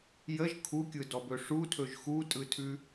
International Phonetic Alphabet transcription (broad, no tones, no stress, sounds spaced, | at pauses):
j ə ʒ kʰ u kʲ ɯ d ɔ b ɵ ʂ u tʰ ɵ ʒ x u tʼ ɯ tʰ ʉ